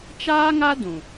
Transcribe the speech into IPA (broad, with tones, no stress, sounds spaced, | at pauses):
t͡ʃ aː˦ ŋ a˦ d ũ˨